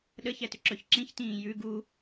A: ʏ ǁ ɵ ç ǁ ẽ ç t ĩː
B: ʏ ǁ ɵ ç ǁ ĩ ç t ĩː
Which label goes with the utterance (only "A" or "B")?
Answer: B